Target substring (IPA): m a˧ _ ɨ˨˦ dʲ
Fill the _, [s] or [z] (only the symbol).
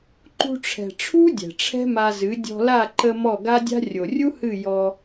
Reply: z